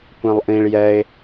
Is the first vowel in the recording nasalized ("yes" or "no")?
yes